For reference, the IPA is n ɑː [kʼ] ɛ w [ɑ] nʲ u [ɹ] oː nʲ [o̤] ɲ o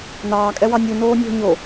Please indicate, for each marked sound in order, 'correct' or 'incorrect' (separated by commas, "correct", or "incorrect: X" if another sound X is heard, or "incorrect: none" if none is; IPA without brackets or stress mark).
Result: correct, correct, incorrect: n, correct